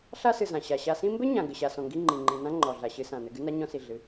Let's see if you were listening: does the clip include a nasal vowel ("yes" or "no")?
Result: yes